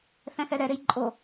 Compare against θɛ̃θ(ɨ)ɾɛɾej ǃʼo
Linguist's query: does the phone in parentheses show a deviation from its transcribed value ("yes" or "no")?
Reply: yes